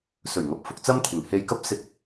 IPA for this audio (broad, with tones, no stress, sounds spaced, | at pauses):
s ɵ˨˩ ɥ ŋ ɐ˨ p̚ f ʊ˧ k̚ t͡s ɐ˥ m t̪ʰ ɪ˨˩ ŋ h e˧ j k ɐ˥ p̚ s ɪ˧ k̚